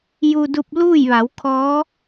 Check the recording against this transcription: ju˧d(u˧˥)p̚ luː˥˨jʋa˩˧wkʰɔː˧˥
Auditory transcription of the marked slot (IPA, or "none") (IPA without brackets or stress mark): u˧